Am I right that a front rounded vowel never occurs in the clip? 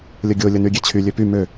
no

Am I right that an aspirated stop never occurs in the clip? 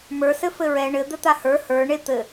yes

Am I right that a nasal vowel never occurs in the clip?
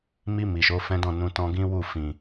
no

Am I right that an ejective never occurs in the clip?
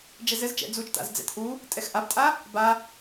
no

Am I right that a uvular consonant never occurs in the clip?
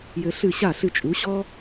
yes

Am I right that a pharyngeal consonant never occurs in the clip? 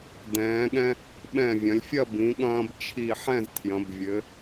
no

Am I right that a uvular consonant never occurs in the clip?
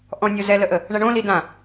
yes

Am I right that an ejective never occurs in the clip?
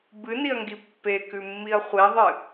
yes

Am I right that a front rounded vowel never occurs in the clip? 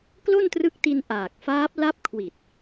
yes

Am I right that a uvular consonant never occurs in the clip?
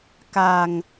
yes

